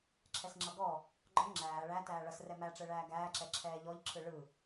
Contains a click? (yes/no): yes